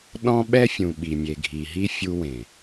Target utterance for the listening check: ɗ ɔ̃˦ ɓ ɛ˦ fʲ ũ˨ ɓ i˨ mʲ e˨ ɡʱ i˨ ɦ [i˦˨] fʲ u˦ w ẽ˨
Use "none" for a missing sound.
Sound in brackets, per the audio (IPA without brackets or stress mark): i˦